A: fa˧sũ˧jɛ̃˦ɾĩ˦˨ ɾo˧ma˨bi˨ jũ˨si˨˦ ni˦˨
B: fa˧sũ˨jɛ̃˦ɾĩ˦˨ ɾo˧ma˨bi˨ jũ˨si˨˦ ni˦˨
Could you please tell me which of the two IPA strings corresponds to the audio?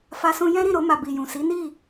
A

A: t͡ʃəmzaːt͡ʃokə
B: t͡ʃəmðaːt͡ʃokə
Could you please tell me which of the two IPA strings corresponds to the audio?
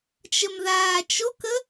B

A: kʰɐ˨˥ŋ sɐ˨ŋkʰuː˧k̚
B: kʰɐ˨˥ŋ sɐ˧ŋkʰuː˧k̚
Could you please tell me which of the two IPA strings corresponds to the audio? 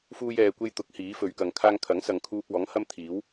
A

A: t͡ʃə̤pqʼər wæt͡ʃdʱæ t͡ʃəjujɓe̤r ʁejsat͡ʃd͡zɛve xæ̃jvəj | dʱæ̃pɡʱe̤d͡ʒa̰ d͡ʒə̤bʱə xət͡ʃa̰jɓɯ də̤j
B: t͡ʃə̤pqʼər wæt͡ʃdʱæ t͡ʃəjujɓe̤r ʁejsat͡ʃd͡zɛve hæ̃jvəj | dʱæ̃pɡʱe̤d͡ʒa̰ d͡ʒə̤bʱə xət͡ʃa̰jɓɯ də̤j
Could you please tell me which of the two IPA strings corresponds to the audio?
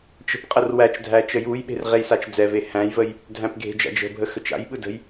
B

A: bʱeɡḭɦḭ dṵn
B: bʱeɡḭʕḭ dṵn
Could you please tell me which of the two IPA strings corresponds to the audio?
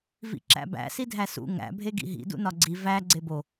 A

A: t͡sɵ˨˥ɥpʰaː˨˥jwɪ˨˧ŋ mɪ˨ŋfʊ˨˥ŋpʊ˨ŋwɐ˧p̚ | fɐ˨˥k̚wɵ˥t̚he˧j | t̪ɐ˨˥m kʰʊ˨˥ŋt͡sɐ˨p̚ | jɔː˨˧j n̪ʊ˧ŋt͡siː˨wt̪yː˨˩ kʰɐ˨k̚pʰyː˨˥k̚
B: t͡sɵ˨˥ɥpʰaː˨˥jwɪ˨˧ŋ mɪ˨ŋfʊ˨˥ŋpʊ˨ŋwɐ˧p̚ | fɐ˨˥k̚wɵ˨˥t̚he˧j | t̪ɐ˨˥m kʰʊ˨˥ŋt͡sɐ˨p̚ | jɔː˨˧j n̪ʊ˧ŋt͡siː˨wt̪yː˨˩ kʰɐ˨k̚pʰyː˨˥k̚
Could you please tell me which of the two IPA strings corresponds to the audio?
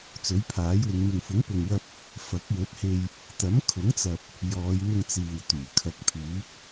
B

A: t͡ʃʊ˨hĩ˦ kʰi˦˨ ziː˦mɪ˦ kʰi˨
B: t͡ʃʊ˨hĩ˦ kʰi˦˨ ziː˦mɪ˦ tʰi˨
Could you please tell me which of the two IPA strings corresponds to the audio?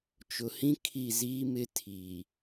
B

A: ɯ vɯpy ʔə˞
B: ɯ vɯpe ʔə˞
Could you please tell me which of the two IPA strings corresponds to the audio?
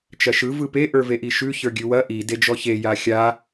B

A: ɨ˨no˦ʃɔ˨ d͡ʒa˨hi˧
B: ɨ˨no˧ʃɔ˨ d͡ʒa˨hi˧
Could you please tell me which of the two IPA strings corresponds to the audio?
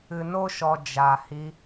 A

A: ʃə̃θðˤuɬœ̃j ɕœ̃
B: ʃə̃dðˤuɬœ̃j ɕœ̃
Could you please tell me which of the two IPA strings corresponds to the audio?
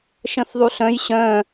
A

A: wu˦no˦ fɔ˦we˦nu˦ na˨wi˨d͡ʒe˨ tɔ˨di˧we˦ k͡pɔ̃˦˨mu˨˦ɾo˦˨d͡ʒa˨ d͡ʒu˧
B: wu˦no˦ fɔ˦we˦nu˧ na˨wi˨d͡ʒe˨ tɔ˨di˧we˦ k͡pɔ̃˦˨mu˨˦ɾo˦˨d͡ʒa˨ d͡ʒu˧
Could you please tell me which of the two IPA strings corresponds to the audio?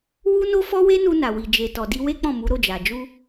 B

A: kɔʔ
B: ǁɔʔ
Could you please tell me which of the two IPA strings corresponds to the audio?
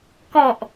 A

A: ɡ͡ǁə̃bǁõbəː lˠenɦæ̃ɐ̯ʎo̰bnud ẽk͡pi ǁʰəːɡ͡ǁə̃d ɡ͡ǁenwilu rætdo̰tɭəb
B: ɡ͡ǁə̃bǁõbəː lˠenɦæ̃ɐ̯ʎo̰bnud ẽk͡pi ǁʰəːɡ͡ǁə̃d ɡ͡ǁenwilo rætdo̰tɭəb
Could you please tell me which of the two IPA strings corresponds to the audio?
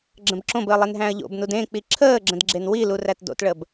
A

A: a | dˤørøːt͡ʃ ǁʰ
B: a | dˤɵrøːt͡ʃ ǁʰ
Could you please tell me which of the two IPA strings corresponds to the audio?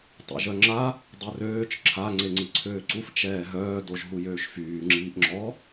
A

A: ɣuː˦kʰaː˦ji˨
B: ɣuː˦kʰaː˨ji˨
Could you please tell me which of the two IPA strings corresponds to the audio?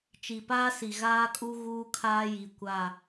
A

